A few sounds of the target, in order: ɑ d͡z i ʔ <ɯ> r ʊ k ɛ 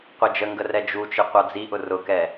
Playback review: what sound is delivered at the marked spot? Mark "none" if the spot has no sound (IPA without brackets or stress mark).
ʊ